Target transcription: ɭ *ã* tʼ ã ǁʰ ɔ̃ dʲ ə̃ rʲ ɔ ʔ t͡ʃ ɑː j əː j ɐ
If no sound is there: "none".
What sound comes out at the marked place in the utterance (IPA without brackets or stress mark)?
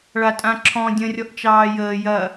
a